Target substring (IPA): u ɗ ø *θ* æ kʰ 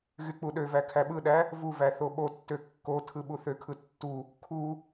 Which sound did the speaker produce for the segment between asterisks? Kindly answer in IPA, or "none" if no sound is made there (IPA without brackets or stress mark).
v